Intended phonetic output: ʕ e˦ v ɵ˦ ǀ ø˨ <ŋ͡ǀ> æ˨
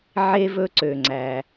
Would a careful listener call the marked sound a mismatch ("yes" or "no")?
no